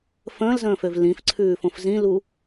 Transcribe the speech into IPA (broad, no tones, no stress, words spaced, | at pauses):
fə̃ːlzə̃ːføv lĩfǀʰʉːfõf zĩlu